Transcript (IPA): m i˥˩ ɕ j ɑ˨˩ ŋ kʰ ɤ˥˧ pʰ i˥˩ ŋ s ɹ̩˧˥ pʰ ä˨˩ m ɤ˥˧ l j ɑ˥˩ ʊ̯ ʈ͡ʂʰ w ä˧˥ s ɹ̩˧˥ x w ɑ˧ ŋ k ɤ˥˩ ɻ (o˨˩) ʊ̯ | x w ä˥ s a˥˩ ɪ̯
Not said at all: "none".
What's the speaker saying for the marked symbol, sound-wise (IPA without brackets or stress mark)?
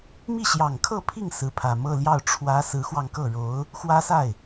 o˧˥